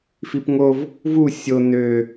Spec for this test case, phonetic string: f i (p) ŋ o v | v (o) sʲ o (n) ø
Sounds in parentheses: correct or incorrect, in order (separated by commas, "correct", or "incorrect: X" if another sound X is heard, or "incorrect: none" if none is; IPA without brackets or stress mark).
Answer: correct, incorrect: u, correct